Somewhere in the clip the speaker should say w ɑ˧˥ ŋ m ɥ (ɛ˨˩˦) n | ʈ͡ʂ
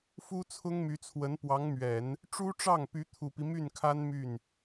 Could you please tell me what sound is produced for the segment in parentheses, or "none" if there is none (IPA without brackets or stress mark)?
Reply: ɛ˨˩˦